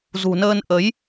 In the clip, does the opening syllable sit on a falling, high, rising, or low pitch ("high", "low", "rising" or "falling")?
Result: low